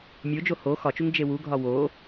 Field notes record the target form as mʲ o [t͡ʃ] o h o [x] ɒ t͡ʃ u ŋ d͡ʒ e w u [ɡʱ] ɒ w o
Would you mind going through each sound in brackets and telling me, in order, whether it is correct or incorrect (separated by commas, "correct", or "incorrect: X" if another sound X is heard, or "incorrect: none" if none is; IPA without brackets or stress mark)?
incorrect: d͡ʒ, correct, correct